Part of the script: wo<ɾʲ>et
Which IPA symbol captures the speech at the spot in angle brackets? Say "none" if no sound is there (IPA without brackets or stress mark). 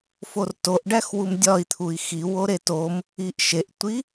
ɾ